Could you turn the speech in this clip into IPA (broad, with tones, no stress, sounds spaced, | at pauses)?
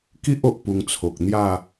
k i˦ ʔ o˨ ʔ p u˧ ŋ t͡sʰ o˨ k̚ n̪ j a˥˧